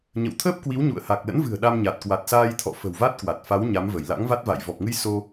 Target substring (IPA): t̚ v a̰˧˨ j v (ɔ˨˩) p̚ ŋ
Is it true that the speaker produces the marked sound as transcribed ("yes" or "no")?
yes